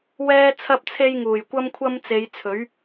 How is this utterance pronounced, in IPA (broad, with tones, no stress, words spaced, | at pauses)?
wɛː˥t͡sʰɐ˥p̚t͡sʰe˥j ŋuː˨˩jkʷɐ˥mkʷʰɐ˥m t͡se˨˧jt͡sʰɵ˨˥ɥ